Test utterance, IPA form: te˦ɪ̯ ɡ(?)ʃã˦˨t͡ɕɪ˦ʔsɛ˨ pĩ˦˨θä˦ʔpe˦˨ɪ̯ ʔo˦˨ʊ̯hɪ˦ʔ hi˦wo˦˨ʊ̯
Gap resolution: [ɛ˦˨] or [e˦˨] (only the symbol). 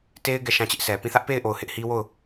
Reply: ɛ˦˨